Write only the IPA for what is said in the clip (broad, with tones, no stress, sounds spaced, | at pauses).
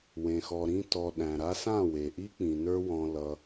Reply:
w ẽ˨ x ɔ˨ ɾ ĩ˧ t ɔ˨ ɗ æ̃˨ ɾ a˧ s ã˦˨ w e˨ ʔ i˦ k͡p ĩ˨ n ə˞˦ w ɔ̃˧ l ʌ˧